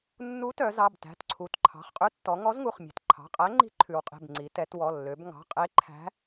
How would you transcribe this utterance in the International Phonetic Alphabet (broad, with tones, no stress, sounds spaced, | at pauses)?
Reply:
nː u˧˥ t œ˩˧ z ɑ˩˧˩ b t æ̤˩˧˩ t ǀʰ u˩˧ t ǃʰ ɑ̤˩˧˩ χ qʼ ʉ˧˥ tː ɔ˩˧ ŋ ɔ˧˥ z ŋ u˩˧˩ χ mʲ e̤˩˧ t ǃʰ ɑ̤˩˧˩ qʼ æ˧˥ ŋ͡ǃ i̤˧˥ ǃʰ ʉ˩˧ w qʼ e̤˩˧˩ b ŋ͡ǀ i˩˧ t ɛ˩˧ t w ɔ˩˧˩ lː ø˩˧ b ŋ ɑ̤˩˧˩ qʼ e˧˥ ǃʰ æ̤˧˥